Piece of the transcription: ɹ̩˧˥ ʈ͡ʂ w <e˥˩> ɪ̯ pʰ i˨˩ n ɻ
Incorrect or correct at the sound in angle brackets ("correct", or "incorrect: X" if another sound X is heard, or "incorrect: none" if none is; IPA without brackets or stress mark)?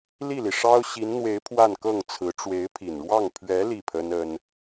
incorrect: e˧˥